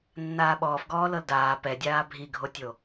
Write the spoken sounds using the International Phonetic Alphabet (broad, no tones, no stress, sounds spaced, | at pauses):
nː aː ɓ ɔː f ɡ ɔː l ɤ l d aː p ɛ dʲ aː bʱ i ɡʱ o tʲ o